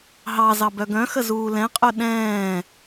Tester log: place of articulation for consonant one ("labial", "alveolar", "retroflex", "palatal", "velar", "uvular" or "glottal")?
glottal